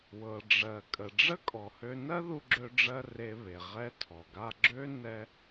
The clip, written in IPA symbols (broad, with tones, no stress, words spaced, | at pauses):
wɤ˩ɖ͡ʐɜ˩ kʼə˩ɖ͡ʐə˥kʼɔ˩hø˧ nɜ˥ðu˧ɡ͡ǁø˧ɖ͡ʐɜ˧ re˧ βe˩ʁɛ˧tʰɔ˩ɡa˧ ɡ͡ǁø˥ nɛ˥